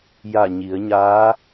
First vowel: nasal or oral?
oral